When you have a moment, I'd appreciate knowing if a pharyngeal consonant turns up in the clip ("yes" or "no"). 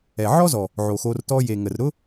yes